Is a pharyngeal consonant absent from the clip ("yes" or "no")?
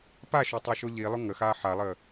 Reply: no